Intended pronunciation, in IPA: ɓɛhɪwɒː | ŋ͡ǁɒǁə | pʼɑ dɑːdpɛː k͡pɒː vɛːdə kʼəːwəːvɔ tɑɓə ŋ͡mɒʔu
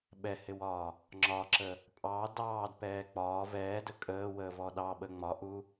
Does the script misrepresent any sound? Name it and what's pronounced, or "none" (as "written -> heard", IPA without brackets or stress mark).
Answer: t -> ɗ